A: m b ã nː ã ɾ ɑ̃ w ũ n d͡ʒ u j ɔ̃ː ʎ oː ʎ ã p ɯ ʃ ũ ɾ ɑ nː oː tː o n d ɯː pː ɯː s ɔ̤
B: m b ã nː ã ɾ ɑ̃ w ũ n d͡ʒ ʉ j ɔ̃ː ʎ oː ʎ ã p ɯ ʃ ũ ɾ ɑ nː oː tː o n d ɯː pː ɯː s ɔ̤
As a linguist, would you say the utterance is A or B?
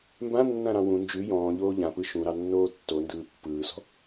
B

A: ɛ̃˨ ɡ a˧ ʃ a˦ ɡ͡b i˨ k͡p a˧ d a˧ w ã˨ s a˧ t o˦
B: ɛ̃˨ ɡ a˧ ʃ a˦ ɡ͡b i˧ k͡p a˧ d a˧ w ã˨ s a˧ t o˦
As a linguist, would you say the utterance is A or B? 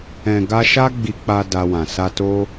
B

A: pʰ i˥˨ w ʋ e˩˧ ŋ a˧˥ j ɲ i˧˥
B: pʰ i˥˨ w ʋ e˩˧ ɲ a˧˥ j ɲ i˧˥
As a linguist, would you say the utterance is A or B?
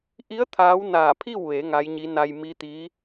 A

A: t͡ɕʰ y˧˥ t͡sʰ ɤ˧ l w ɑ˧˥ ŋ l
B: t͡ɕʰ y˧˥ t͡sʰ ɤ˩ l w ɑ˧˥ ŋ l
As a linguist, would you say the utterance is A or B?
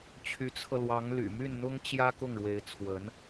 A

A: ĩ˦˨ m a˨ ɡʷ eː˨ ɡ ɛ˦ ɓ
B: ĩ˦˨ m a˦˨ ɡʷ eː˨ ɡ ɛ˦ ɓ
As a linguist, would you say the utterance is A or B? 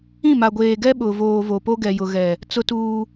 A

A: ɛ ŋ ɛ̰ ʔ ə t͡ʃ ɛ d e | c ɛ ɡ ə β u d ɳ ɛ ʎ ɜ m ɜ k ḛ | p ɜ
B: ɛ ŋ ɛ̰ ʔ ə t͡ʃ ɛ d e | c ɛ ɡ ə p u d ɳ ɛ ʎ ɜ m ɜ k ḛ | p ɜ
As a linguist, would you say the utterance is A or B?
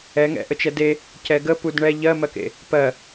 B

